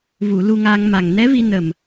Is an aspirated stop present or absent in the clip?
absent